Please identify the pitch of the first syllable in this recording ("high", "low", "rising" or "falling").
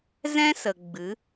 high